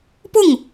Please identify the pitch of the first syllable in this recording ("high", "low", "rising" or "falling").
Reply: falling